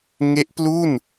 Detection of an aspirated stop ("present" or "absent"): absent